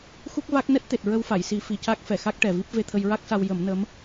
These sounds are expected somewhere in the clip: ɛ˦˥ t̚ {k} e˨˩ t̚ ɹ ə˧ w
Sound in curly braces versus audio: incorrect: t̪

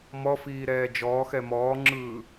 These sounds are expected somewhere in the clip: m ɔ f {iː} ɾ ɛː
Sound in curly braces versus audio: correct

